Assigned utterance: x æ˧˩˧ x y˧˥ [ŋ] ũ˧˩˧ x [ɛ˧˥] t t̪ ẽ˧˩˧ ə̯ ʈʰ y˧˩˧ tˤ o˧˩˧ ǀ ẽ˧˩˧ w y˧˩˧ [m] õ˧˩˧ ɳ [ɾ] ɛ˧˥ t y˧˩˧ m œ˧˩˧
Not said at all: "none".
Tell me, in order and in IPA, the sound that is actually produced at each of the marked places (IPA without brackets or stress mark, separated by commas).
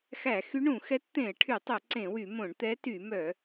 ɳ, ɛ˧˥, m, t̪